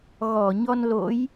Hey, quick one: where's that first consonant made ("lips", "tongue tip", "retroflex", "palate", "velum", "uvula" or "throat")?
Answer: velum